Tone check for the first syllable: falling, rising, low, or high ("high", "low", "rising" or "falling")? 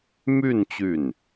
falling